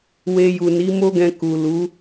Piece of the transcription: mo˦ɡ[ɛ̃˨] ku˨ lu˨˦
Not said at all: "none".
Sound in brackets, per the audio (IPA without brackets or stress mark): ɛ̃˧